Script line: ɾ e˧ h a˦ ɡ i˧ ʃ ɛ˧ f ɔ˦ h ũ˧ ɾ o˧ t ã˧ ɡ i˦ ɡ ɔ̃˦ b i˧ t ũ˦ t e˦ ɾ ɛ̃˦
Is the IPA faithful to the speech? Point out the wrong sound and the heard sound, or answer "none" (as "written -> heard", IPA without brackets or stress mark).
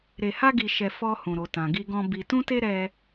ɛ̃˦ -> ɛ˦